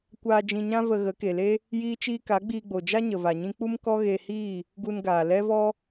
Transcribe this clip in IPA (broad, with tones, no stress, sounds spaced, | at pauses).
kʷ aː˧ d͡ʒ ĩ˧ ɲ ã˦ v ə˧ ɣ ə˨˦ k e˨ l e˦ | j iː˦ t͡ʃ iː˦ k a˨˦ ɡ͡b iː˧ ɡ͡b o˨ d͡ʒ a˦ ɲ ə˨ v a˨ ɲ ĩ˦ k͡p u˦ m k ɔ˦ ɣ e˧ h iː˦˨ | ɡ u˧ n ɡ aː˨ l ɛ˦ v ɔ˦